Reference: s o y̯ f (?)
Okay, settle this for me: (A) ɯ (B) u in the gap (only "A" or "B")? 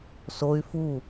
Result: B